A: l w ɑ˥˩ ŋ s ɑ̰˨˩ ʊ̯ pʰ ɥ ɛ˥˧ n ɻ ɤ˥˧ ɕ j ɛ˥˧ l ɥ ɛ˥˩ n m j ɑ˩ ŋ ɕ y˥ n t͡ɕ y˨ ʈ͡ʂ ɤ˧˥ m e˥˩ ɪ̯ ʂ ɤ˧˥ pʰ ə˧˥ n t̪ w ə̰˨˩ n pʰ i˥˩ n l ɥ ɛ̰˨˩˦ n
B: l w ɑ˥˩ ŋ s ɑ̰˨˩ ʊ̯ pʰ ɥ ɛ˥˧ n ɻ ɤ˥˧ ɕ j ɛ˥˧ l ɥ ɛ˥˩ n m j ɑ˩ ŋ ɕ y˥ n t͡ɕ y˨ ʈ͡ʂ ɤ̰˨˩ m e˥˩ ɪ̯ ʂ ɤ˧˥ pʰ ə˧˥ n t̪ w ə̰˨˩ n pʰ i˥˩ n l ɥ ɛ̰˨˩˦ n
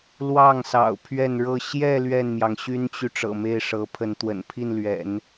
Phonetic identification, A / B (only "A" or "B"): B